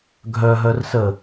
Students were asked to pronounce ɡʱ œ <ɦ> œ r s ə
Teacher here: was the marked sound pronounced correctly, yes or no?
yes